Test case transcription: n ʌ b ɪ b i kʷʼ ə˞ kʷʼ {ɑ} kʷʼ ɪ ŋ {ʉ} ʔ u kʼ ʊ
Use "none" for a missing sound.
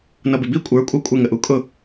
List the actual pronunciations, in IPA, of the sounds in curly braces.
ɑ, ə

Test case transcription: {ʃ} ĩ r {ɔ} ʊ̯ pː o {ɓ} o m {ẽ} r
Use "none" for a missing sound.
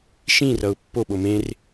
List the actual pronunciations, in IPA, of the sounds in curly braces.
ʃ, ʌ, ɓ, ẽ

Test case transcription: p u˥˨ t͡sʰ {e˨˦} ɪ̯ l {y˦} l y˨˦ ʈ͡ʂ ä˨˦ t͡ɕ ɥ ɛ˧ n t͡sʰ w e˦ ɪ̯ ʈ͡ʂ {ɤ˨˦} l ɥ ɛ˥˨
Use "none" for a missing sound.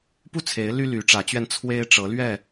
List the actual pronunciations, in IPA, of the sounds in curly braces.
e˨˦, y˦, ɤ˨˦

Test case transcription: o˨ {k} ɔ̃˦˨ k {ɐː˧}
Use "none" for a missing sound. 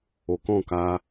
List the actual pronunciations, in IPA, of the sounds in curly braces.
k, aː˧

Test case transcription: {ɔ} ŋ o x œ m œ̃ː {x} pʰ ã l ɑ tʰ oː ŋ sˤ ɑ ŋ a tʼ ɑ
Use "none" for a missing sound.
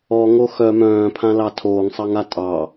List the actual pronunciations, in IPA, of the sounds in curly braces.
ɔ, none

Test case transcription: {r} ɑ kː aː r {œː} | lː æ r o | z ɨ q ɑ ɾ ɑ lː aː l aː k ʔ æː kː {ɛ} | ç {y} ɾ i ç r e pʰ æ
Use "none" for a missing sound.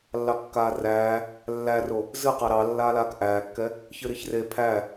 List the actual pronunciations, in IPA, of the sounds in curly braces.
lː, æː, ɛ, ɨ

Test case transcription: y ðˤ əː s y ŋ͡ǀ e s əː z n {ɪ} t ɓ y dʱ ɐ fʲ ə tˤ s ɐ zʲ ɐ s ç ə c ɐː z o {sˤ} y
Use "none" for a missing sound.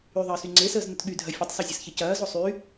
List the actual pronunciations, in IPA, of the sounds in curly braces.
ə, sˤ

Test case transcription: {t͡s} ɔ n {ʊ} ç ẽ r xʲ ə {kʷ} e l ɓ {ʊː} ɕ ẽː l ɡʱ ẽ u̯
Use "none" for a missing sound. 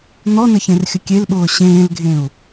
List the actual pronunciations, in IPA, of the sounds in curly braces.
n̪, ə, kʲ, ʊː

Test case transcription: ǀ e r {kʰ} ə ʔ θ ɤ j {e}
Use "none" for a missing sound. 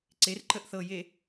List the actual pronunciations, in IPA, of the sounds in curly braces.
ǃ, e

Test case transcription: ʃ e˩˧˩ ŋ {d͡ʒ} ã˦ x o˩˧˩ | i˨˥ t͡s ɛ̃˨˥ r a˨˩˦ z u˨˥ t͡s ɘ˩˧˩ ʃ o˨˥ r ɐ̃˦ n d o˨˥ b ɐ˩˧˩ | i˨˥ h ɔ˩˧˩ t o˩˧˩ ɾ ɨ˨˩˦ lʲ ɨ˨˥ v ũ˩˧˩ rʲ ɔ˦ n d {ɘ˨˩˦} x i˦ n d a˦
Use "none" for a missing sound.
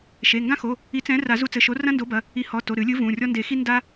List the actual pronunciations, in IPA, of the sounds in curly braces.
ɡ, e˨˩˦

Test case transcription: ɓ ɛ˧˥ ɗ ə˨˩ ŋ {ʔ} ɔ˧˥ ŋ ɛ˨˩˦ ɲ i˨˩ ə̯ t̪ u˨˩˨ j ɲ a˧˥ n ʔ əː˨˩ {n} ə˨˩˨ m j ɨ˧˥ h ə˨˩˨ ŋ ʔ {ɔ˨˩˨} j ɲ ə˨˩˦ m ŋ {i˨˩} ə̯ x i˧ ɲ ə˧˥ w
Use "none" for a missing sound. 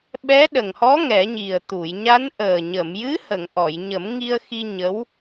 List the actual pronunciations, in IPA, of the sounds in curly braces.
h, ɲ, ɔ˨˩˨, i˧

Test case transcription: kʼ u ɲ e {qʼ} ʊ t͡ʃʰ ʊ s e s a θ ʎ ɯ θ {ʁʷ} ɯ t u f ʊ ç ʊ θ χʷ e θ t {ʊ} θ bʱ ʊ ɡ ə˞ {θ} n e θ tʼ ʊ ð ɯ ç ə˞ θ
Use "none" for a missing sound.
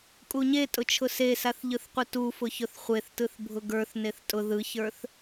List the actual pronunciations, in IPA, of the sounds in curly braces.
tʼ, qʷ, ɯ, θ

